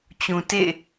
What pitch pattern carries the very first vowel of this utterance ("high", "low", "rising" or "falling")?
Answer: low